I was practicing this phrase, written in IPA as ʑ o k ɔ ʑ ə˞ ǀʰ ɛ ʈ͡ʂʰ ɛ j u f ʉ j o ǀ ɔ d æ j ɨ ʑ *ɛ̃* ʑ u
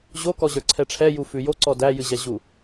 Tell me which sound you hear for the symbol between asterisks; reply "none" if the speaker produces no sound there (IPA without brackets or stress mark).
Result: ɛ